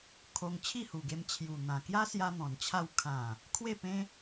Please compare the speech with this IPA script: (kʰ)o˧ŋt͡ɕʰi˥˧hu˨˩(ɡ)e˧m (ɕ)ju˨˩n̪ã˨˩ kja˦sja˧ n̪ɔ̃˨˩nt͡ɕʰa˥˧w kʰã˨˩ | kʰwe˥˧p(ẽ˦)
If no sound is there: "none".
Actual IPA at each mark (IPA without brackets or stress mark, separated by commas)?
kʰ, ɡ, t͡ɕʰ, ẽ˦